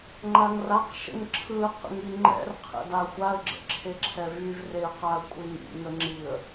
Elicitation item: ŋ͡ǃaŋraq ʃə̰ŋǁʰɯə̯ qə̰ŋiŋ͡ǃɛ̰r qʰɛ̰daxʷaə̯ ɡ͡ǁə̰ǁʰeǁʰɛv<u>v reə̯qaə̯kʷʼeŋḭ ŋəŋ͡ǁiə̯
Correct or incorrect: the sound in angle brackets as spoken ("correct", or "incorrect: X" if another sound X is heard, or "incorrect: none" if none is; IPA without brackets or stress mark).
incorrect: y